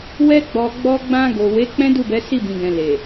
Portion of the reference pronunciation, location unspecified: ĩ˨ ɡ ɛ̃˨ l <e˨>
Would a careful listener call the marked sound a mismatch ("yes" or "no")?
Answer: no